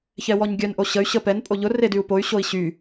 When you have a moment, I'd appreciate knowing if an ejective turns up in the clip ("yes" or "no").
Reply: yes